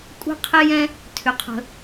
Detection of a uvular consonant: present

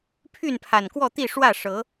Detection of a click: absent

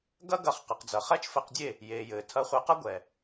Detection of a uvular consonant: present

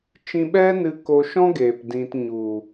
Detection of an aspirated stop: absent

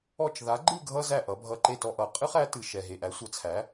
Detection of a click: present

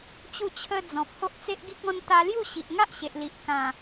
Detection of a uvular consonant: absent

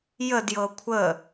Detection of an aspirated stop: present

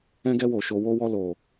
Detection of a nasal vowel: present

